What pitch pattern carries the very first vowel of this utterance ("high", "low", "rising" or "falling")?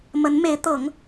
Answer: rising